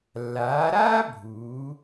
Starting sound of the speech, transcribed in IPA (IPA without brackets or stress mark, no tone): lː